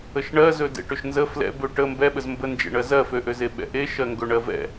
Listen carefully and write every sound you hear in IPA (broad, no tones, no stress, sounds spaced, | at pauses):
ə ʃ ɳ ɜ z ɵ d ḛ ʈ ø ʃ n z ə f l ɛ̰ b ø ʈ ə m b ɛ ɓ ə z m b ə n d͡ʒ ḛ ɳ ɜ z ɜ f ø ʔ ø z e ɓ ɛ̰ ʔ e ʃ ɜ ŋ ɡ ɵ ɳ ɜ v ɛ̰